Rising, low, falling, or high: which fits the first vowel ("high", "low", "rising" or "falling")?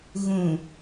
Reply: low